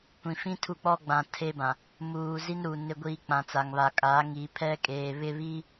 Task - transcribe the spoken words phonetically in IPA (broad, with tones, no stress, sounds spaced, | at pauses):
kʷ ĩ˨ f ĩ˦ tʰ u˦˨ k͡p ɔ˦ ɡ͡b ã˨ tʰ e˦ b ã˨ | m uː˨ z i˦ n ɾ u˨ n ɪ˨ ɡʷ iː˨ k͡p ã˨ t͡s a˨ ŋ β a˨ kʼ aː˨˦ ŋ iː˨ pʰ ɛ˦ kʼ eː˨ β ɪ˦ β iː˦